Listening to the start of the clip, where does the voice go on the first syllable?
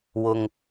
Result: low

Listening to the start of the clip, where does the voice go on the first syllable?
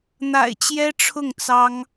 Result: low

